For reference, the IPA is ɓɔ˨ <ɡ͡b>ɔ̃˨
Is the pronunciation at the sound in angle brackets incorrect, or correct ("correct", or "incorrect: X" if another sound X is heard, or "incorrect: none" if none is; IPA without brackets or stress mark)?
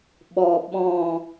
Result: incorrect: ɓ